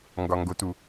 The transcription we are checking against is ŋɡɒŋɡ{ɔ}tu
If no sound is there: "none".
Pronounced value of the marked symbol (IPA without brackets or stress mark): o